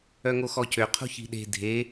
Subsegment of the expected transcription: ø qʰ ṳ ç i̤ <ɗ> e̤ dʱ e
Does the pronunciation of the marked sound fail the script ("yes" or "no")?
no